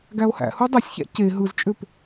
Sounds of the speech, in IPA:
ɡ æ o̯ h æ̰ h u dˤ æ sʲ ç æ̰ c e ɦ ɯ z t͡ʃʼ ø p

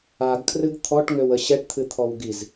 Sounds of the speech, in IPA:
a ɡ kʰ r ɨ ɡ t̪ʰ ɔ ʈ ŋ ø w ə ɕ ɛ ʈ t̪ʰ ɨ t̪ʰ ɔ w ɡ i z

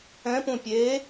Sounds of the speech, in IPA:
ɛ̃ p ũ pʲ e

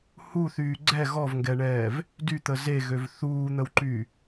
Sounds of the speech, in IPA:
h u θ yː ɡ͡ǀ ɛ ɣ ɔ v ŋ ɡ ɛ ɳ ɛː v | d y t̪ ə z e ɣ ø v θ uː n̪ ə w ǃ yː

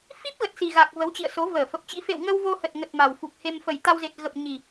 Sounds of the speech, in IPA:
f i˦˥ p̚ ɣ ə˨˩ t̚ s i˨˩ ɣ a˨˩ k̚ v ə˨˦ w t͡ɕ ḭ˧˨ ə̯ s o˨˦ v əː˧˩ f ə˨˩ p̚ t͡ɕ ḭ˧˥ f ḛ˧˨ w ŋ ə˧ w v o˧ h ə˨˩ t̚ ŋ ə˨˩ t̚ m a˨˩ w f u˨˩ k̚ h e˧ m f ə˨˩ j t̪ a˧ w z e˨˩ t̚ ɣ ə˨˩ p̚ ɲ i˨˩

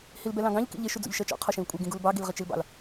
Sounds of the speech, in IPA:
h i l b ɛ l ɑ̃ ɡ ɑ̃ ʎ k ḭ ʎ ɪ ʃ u d͡z ṵ ʎ ʃ ɜ t͡ʃ ɔ̰ qʰ ɔ ʃ ĩ l kʷʼ ɛ ɡ ĩ ɡ u l b ɑ ɡ i l ʁ ɪ t͡ʃ i l b ɑ̰ l

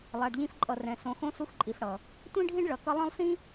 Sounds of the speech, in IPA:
lˠ a˨ ɖ ʎ ĩ˧ f ǃʼ ʌ˨ r ɛ̃˨ s õ˨ x õ˧ s u˧ x ǃʼ i˨ f ɽ ʌ˨ | tʷ ĩ˦ ɖʱ ĩ˦ ɖ ɭ ʌ˨ k ʌ˧ lˠ ɛ̃˦ lˠ s ĩ˦

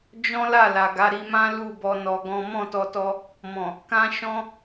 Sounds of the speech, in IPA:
d͡ʒ ɔ̃˦ l a˦˨ l a˨ ɡ a˨˦ ɾ i˧ m ã˦ l u˦˨ b ɔ˧ n ɔ˧ ɡ ɔ̃˦ m ɔ̃˦˨ t ɔ˧ t ɔ˧ | m ɔ̃˨ | k ã˦ ʃ ɔ̃˦

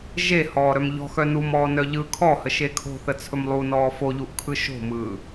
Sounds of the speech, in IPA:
ʒ e h ɔː ɾ œ m ʎ ɔ̤ x œ n u m ɔː n œ ʎ ɯ kʰ ɔ h ə ʃ e kʰ o̤ θ ə t͡sʰ ɵ m lˠ u n ɔː f o ʎ u ʔ kʰ ɯ ʃ o̤ m ɯː

